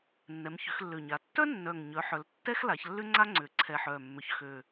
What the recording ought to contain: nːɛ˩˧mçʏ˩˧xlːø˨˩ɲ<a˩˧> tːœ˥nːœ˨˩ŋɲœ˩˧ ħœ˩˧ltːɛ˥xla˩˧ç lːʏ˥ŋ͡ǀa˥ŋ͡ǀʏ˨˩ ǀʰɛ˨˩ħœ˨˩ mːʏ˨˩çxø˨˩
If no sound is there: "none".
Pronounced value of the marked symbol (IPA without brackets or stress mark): a˩˧